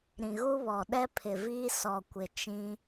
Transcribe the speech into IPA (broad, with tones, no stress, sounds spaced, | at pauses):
ɾ ĩ˨ ɣ u˦ β ɔ˨ ɗ ɛ˦ pʰ ɪ˨ v iː˦ s ɔ˨ kʷ ɪ˨ t͡ʃ ĩ˦